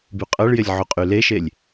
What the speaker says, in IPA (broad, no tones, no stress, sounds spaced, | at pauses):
b y qʼ ʌ ɭ j ɪ lʲ ʕ u qʼ y l e ʃ e lʲ